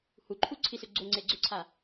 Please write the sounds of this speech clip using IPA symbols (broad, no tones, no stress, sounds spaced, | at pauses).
h u ǃʰ u ǀʰ i s ø ɡ͡ǀ o ŋ͡ǀ e ɡ͡ǀ ʏ ǀʰ a